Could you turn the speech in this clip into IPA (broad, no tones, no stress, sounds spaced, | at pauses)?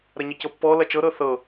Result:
ɾ ɐ ɲ ə c ɤ pː ɔ l ɐ t͡ʃ ɤ ɾ ɤ θ ɤ